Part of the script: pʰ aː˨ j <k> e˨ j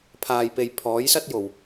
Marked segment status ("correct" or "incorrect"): incorrect